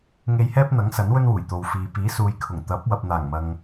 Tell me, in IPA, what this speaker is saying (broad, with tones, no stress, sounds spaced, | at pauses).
ŋ e˧ j h ɛː˥ p̚ n̪ ɐ˨˥ ŋ s ɐ˨˥ n w ɵ˥ n w uː˨˩ j t̪ o˨ w f iː˨ p iː˨˥ s uː˨˧ j kʰ ʊ˨˩ ŋ t̪ ɐ˨˥ p̚ w ɐ˨ p̚ n̪ aː˨˩ ŋ m ɐ˨ ŋ